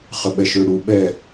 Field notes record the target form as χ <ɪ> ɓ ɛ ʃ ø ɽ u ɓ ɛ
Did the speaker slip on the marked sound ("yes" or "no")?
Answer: yes